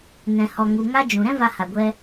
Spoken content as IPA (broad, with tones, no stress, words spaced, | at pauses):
nɛ̃˨hɔ˨ ŋu˨ ŋa˦d͡ʒũ˨ ɾɛ̃˦ va˧ha˨ɡʷɛ˧